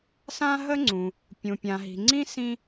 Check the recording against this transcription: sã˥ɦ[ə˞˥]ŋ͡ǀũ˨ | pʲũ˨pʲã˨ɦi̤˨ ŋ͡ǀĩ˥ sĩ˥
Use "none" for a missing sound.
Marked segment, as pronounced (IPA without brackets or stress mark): ə˥